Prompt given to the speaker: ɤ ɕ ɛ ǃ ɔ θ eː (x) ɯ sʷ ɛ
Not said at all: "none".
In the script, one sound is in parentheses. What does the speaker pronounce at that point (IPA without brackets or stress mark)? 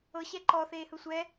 h